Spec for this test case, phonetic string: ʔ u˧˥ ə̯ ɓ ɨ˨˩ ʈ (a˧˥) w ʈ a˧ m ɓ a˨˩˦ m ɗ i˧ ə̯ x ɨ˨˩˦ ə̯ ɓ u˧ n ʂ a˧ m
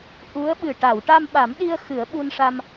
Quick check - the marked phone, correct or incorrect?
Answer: incorrect